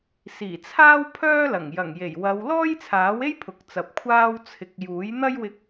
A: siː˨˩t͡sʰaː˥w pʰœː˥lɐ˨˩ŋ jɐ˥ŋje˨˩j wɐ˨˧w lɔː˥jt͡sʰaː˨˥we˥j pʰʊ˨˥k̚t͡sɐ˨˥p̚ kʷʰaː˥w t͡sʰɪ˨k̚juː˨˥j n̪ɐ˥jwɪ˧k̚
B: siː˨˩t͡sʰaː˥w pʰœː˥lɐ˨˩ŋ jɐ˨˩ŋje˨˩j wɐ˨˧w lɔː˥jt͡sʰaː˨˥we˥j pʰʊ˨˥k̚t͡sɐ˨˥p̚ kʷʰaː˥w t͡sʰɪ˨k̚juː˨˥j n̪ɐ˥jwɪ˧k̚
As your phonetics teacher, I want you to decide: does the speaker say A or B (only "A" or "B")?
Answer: B